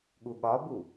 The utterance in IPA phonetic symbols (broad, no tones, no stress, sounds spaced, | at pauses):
ɠ u ɠ ɒ b u